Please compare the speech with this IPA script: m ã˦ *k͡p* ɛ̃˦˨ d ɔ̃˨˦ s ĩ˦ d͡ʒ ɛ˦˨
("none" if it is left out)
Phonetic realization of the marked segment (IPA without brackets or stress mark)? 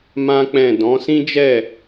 k͡p